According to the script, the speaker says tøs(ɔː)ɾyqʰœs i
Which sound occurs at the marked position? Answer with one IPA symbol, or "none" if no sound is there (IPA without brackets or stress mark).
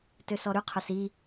ɔ